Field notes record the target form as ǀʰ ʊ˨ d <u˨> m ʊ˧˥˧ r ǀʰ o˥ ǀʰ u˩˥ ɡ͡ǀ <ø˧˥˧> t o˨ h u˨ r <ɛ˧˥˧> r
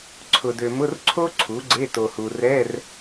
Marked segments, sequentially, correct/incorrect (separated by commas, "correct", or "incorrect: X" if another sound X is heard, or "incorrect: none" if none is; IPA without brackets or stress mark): incorrect: ø˨, incorrect: e˧˥˧, correct